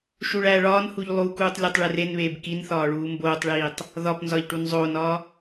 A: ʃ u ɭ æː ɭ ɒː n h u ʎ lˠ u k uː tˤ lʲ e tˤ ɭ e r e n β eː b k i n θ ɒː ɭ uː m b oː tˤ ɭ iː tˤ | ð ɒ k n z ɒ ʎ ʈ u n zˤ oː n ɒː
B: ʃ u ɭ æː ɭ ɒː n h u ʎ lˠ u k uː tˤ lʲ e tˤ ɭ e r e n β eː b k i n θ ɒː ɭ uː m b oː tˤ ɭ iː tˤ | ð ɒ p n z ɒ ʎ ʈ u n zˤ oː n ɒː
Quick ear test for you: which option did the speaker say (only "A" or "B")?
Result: B